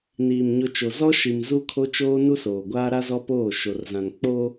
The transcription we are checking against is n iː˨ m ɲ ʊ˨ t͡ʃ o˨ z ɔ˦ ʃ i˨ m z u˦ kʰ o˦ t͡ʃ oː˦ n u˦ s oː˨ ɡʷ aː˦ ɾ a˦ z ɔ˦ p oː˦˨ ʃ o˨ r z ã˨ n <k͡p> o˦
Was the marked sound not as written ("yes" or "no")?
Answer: no